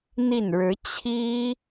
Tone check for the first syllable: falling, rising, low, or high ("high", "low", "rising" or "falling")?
falling